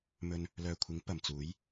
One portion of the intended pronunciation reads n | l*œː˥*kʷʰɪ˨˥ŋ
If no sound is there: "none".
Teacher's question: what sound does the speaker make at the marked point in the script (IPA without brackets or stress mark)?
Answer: œː˨